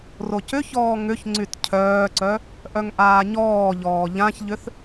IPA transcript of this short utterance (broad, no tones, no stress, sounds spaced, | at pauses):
r o c ʏ ç ɔː ŋ ʏ ç ŋ͡ǀ y t cʰ œː ǀ œ | ʔ œ ŋ ʔ aː ɲ ɔː ʎ ɔː ʎ ã ç ʎ ʏ θ